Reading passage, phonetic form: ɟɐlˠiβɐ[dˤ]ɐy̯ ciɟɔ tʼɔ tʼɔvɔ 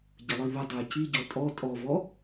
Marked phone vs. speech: correct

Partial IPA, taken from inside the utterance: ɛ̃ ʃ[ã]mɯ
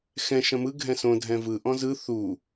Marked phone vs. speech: incorrect: ɐ̃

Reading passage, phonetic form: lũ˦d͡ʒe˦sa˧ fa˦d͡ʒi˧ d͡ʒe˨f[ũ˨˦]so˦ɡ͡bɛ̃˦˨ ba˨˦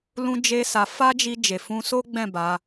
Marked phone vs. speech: incorrect: ũ˧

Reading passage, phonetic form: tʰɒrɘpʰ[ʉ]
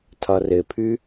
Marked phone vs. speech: correct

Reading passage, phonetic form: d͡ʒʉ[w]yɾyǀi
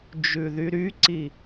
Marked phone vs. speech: incorrect: ð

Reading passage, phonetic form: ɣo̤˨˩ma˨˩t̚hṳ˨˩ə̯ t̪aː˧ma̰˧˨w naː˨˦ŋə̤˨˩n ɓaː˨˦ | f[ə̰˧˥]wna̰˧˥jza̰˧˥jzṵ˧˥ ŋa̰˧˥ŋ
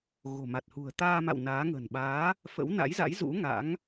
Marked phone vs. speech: correct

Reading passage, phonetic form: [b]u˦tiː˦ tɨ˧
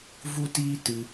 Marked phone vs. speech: incorrect: v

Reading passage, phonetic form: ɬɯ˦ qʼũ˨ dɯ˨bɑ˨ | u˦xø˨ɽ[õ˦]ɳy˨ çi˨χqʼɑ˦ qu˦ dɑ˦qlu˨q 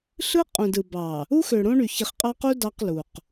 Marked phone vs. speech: correct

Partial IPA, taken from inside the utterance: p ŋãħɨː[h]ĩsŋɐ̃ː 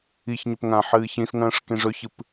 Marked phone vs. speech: incorrect: ç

